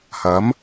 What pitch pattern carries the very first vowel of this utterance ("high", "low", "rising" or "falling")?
rising